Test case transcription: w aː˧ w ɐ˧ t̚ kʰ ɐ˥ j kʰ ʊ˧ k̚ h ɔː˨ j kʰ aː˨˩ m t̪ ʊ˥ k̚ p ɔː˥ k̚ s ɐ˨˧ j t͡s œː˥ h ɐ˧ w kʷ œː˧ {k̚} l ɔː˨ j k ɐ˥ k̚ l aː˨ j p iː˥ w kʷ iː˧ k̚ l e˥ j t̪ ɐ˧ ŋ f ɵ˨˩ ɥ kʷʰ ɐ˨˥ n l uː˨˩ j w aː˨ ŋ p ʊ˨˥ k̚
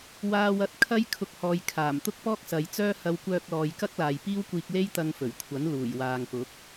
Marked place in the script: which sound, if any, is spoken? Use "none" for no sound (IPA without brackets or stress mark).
k̚